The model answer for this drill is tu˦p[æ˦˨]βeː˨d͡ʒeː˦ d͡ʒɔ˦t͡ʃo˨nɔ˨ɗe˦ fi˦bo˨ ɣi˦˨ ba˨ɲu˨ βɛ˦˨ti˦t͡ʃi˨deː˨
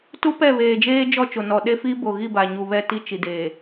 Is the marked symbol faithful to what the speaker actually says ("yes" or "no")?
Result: no